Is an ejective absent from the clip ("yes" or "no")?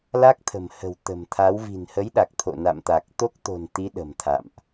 yes